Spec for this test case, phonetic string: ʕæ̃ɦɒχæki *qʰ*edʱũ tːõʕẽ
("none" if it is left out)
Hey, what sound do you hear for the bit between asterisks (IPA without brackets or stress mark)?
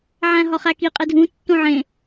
qʼ